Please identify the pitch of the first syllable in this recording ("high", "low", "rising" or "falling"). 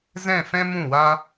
falling